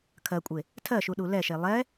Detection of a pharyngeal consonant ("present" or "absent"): absent